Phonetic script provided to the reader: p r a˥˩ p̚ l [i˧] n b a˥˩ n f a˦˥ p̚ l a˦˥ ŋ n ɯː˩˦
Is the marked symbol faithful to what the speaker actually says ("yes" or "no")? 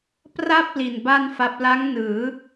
no